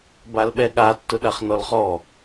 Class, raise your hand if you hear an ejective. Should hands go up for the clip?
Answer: no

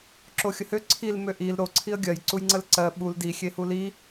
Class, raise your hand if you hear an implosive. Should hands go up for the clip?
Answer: yes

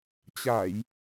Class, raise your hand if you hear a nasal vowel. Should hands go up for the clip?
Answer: no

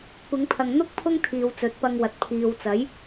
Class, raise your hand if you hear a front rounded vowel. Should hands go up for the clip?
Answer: no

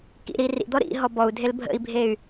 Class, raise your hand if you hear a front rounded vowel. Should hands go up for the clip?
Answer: yes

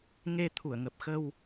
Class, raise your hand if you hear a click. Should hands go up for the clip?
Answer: no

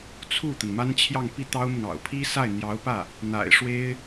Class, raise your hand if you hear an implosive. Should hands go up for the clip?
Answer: no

